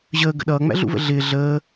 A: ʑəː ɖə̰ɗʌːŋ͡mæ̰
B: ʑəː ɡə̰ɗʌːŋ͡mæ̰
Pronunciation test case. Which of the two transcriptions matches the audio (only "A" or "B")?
B